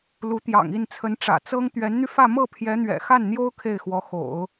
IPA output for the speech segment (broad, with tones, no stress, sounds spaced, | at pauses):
l u˧˥ t̪ j ɑ̰˨˩ ŋ i˥˩ n t͡sʰ ə˧˥ n ʈ͡ʂ ä̰˨˩ t͡s ɤ˥ ŋ t̪ ɥ ɛ˧˥ n n̪ y˧ f ä˥˧ m ɤ˥˩ pʰ j ɛ˧˥ n̪ ɥ ɛ̰˨˩ x a˥˩ n n̪ j o˥ ʊ̯ kʰ e˥˩ ɪ̯ x w ɔ˧˥ x o̰˨˩˦ ʊ̯